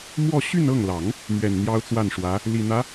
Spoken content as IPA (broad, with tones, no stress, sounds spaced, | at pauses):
m w ɔ˥˧ ɕ y˥˧ n ɤ˥˩ ŋ l ɑ˨˩˦ ŋ | m ɥ ɛ˨˩ n n̪ j ɑ˥ ʊ̯ t͡s w a˥˩ n ʂ w ä˧˥ | l i˨˩ n̪ ä˧˥